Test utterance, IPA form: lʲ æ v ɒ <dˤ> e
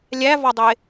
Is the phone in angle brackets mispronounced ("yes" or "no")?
no